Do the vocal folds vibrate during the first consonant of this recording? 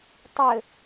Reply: no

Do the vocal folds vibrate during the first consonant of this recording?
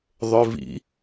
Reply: yes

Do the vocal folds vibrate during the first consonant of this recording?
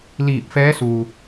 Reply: yes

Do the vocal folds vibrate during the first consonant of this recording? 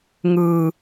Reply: yes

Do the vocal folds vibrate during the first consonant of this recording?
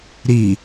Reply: yes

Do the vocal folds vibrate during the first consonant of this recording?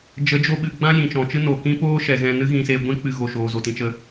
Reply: yes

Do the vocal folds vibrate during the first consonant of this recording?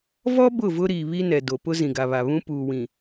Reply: yes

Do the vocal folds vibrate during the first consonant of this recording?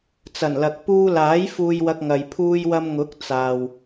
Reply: no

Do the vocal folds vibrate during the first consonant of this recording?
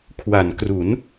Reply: no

